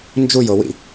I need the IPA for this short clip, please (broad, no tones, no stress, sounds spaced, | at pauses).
n d͡ʒ u j o w ḭ